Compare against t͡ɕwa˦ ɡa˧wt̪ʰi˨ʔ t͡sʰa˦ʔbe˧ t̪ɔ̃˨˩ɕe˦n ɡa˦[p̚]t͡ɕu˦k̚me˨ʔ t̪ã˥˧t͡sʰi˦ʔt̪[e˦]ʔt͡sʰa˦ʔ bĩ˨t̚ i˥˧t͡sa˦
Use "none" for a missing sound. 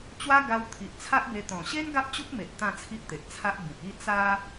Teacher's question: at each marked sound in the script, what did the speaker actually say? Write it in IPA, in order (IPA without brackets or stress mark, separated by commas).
p̚, e˨